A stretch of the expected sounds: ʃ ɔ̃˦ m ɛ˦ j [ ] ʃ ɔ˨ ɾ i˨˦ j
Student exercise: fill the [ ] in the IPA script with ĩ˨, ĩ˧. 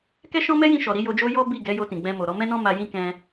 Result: ĩ˧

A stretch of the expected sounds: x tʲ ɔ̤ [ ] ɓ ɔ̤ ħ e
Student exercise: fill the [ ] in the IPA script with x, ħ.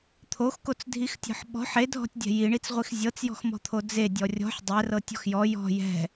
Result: ħ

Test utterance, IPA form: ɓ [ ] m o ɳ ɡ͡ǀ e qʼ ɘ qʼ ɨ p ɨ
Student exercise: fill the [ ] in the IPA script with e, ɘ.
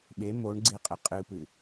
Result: e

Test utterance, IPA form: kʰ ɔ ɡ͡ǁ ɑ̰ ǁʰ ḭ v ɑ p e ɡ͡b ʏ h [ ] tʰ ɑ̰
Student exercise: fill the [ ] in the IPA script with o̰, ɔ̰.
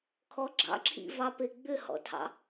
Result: ɔ̰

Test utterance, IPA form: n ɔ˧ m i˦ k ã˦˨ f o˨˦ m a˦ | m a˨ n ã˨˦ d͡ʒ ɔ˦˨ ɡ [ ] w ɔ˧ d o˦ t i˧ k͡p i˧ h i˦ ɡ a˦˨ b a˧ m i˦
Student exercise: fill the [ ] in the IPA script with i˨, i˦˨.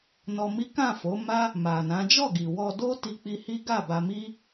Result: i˨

